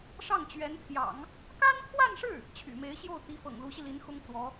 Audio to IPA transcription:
ʂ ɑ˥˩ ŋ t͡ɕ ɥ ɛ˧˥ n pʰ j ɑ̰˨˩˦ ŋ | k a˥ n kʰ w a˥˧ n ʂ ɻ̩˥˩ | t͡ɕʰ y̰˨˩ m e˧˥ ɪ̯ ɕ j o˥˩ ʊ̯ t̪ i˧˥ f ɤ̰˨˩ ŋ l u˧˥ ɕ i˧ l i˧˥ n x ʊ˥ ŋ t͡s w ɔ˧˥

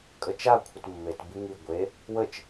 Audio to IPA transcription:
kʼ ə t͡ʃ a kʷʰ ə t mː e t b i ŋ i ɡʷ e | w ə t͡ʃ

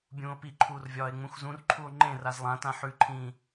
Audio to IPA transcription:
bʲ ũː o̯ p i ǃʰ uː r vʲ ɒː e̯ ŋ͡m ũ x z ũ r ǃʰ u o̯ ŋ͡ǃ ẽ r a z lˠ ã t ã ħ ʉ ǃʰ ĩː

